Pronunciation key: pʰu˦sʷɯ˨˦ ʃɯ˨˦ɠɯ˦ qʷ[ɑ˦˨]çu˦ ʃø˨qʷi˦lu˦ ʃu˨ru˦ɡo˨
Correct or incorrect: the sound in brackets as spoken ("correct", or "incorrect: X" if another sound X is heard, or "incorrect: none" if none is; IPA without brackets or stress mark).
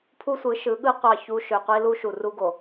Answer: correct